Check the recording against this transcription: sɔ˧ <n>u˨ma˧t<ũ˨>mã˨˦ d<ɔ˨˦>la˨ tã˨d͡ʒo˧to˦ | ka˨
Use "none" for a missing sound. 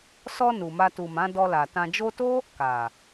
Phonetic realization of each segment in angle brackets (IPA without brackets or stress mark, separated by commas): n, u˨, ɔ˧